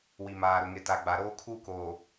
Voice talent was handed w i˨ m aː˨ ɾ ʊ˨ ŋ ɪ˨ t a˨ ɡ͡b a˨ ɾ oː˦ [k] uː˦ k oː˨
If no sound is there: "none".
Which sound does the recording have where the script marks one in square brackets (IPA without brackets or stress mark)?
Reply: kʰ